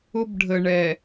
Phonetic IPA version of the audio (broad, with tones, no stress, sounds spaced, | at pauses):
ʊ˦ b ɖʱ ə˨ ɳ ɛ˨